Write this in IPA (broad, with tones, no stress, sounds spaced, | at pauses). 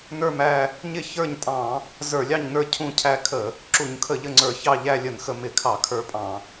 n ə˞˦˨ m æ˦˨ | ɲ ɪ˦˨ ç ə˞˦˨ ɲ tʼ ɑ̃˧˩˧ | z ə˞˧˩˧ lʲ ɑ˦˨ ɲ n ə˞˦˨ cʰ ũ˦˨ cʰ æ˦˨ kʰ ə˧˩˧ | ǁ u˧˩˧ ɲ kʰ ə˧˩˧ ʎ ə˦˨ ŋ͡ǀ ə˞˧˩˧ ç ɑ˦˨ ʎ æ˦˨ lʲ ə˧˩˧ n x ə˧˩˧ m ɪ˧˩˧ kʰ ɑ˧˩˧ kʰ ə˞˦˨ pʼ ɑ̃˧˩˧